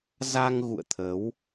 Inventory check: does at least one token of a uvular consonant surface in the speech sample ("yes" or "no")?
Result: no